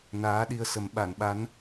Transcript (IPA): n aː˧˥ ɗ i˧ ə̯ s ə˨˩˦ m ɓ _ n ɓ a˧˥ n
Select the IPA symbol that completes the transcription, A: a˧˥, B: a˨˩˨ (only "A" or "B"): B